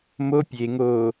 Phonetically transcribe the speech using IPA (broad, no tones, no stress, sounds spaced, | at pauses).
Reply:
m o pʲ e ŋ o